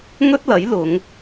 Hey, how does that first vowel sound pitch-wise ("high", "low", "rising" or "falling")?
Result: high